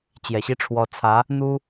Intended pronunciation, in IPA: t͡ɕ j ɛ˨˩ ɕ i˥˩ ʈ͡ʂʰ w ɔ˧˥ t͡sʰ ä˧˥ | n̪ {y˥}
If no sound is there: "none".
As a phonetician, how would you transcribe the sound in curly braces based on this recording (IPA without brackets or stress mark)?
u˥